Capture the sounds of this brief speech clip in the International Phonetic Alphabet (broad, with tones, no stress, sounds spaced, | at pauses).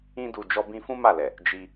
ĩ˧ d u˨ d͡ʒ ɔ˧ b ĩ˧ f ũ˦ m a˦˨ l ɛ˨ | d͡ʒ i˧